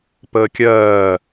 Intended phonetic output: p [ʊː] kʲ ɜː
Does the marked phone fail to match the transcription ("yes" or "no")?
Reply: yes